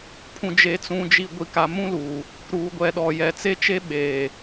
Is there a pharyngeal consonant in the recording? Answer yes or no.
no